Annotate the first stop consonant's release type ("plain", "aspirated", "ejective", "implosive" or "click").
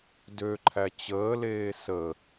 plain